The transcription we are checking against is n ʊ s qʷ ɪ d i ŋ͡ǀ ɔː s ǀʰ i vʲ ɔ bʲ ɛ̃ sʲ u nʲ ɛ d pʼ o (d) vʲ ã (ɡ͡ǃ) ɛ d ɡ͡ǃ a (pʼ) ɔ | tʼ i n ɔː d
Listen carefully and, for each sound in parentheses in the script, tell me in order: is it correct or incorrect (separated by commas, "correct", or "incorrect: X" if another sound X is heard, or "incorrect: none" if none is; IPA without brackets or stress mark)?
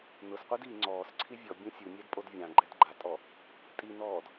correct, correct, incorrect: tʼ